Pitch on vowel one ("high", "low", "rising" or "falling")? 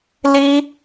high